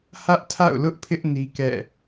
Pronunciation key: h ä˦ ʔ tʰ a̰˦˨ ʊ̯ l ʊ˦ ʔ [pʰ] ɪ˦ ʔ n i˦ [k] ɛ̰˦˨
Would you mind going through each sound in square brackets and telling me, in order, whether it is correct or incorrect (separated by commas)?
correct, correct